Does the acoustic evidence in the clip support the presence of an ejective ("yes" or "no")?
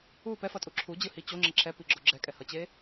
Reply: yes